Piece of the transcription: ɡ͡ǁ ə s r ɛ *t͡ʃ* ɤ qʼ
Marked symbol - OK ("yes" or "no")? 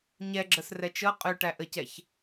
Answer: yes